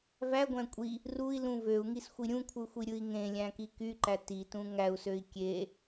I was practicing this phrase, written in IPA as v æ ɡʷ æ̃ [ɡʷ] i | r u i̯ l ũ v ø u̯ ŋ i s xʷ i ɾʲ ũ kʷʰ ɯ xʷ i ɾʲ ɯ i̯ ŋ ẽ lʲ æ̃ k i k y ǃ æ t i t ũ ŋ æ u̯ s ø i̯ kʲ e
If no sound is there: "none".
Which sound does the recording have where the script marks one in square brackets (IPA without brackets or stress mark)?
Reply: kʷʼ